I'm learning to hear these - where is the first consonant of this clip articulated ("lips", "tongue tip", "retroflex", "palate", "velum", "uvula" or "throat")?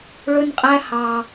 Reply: retroflex